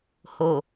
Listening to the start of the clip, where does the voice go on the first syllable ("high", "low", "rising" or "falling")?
low